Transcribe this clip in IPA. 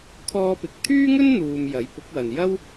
kʰ ɔː˥ p ɪ˧ k̚ t̪ʰ yː˥ ŋ ɵ˥ n n̪ uː˨ m j ɐ˨˥ j p ʊ˨˥ k̚ w ɐ˨ n j ɐ˥ w

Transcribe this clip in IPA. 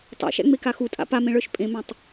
tˤ a̰ ʃ æ̰ ŋ͡m e k a x u tʼ a̰ p a m ẽ ɭ ə˞ ʃ pʼ ẽ m æ̃ tˤ

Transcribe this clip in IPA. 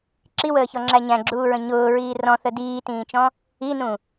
ǁ i w əː ç ɔ ŋ͡ǁ æ ɲ æ̃ ɡ͡ǁ uː ɹ ə̃ ɲ ʊː ɹ iː r ɔ̃ θ ə d iː t ĩː t͡ʃ ɔ̃ | i n ũ

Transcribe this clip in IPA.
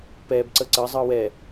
p ɛː b ǀ əː ǀ əː zˤ ɯː w ɛː

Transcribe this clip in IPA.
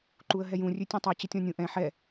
ǃ u ə̯ ɦ ɛ j ũ rʲ ʉ tʲ ũ tˤ ɛ t͡ɕ ə tʲ ɔ̃ nʲ ũ ʔ ɛ̃ ħ ɛ

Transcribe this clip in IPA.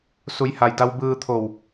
s u˩˧ j h a˩ j d a˧ w b ɯː˧ t̪ʰ o˧˩ w

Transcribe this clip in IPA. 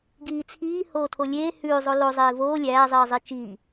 ɡ iː t͡sʰ iː h oː tʰ o lʲ eː h ʉː zˤ o l o zˤ eː v oː lʲ æː zˤ iː zˤ i t͡ʃ iː

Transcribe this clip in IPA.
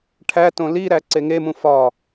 ʈʰ æ t õ l i ɾ æ ǀ e ŋ e m ũ f ɒ

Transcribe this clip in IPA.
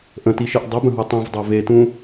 ʔ ə̃ t i ʃ i ʔ dˤ ɪ b ə̃ ɦ u tˤ ũ v dˤ e v e t ũ

